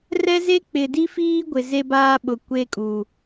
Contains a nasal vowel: no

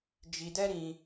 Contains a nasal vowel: yes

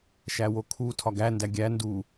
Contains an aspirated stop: yes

